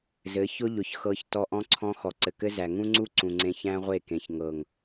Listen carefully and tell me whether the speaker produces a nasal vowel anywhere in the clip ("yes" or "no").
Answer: yes